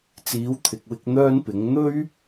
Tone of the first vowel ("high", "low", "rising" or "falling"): rising